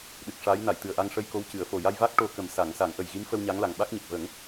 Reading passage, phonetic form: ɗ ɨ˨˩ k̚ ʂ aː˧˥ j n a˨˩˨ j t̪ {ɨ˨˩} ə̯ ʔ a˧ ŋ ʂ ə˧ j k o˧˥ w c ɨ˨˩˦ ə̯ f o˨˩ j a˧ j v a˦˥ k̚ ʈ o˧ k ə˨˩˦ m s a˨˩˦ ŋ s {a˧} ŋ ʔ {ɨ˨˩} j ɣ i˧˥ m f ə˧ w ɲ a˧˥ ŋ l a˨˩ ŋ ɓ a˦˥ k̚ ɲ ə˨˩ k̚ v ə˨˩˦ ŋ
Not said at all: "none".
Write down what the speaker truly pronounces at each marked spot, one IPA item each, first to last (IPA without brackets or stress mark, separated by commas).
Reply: ɨ˨˩, a˨˩˦, ə˨˩